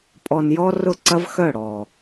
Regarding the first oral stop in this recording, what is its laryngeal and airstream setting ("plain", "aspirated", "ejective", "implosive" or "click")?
ejective